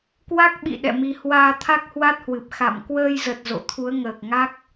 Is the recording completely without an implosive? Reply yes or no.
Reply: no